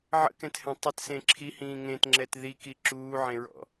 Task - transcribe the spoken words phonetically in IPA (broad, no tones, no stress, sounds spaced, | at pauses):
ʕ ə̰ k ɛ̃ t h ɛ̃ tˤ ə t s ẽ ǁʰ i h ĩː ŋ ẽ t ŋ͡ǁ ɛ t ð i k i ǁ uː ʕ ẽ ɹ ɔ̰